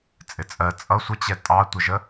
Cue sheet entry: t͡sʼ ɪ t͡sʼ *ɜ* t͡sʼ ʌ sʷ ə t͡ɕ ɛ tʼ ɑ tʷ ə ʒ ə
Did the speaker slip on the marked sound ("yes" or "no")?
no